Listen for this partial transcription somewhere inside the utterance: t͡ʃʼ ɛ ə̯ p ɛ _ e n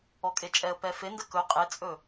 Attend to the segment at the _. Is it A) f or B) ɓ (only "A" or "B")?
A